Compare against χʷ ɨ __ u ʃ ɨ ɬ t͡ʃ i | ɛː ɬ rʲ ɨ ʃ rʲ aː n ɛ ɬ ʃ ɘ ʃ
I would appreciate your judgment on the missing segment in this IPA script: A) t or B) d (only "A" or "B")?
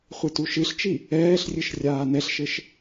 A